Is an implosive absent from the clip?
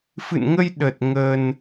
no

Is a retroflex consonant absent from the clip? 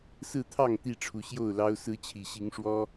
no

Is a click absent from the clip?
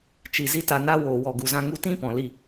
yes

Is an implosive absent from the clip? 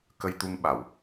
no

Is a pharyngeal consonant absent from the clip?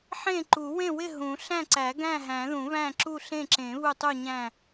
no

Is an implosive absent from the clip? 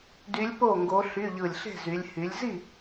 yes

